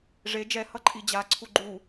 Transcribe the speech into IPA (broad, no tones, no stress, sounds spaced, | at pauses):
ʐ e d͡ʒ ɛ h ʌ ǃʼ i d͡ʑ a ǀʰ u ɡ͡ǃ u